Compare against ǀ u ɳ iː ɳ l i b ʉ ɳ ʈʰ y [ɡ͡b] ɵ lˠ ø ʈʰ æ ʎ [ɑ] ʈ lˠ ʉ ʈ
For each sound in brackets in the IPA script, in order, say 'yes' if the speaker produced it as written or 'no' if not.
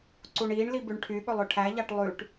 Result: no, yes

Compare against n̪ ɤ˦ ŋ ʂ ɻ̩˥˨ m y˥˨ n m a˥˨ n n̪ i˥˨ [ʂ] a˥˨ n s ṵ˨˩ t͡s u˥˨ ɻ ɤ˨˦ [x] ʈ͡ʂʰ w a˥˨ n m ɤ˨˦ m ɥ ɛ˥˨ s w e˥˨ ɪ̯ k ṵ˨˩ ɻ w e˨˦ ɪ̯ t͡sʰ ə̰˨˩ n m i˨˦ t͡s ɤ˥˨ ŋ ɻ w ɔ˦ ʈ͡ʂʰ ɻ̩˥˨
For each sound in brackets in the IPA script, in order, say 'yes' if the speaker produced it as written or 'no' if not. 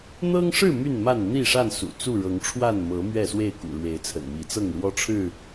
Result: yes, no

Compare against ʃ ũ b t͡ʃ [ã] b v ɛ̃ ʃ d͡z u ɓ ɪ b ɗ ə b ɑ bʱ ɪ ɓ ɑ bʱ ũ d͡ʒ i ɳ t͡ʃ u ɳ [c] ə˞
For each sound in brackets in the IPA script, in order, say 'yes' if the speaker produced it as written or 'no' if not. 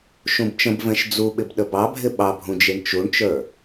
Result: no, no

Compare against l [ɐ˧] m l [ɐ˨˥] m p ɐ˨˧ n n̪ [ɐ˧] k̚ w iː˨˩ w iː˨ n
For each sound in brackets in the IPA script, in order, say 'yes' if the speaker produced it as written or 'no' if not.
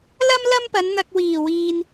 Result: no, no, yes

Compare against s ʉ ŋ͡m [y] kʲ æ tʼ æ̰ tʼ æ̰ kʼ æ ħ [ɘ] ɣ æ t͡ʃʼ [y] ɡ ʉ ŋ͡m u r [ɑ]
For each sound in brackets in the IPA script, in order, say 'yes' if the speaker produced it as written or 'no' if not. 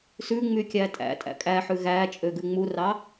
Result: yes, no, no, yes

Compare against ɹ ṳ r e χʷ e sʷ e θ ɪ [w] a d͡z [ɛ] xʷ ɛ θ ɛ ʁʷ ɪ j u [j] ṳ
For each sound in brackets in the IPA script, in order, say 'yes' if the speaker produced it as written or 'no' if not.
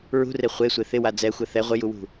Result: yes, yes, no

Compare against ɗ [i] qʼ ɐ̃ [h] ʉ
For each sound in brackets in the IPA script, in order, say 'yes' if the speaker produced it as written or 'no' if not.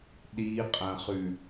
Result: yes, no

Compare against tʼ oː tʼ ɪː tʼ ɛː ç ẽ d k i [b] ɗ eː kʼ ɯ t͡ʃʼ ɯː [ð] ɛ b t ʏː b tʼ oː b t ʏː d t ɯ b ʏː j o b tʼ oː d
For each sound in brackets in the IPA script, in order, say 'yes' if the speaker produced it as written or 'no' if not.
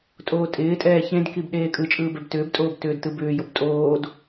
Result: yes, no

